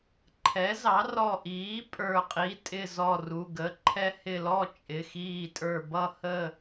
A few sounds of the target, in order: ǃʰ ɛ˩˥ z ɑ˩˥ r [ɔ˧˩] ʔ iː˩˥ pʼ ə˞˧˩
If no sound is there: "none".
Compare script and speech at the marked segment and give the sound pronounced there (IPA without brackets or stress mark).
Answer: ɔ˧˩